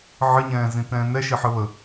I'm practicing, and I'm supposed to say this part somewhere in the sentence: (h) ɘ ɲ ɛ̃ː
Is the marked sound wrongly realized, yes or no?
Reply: yes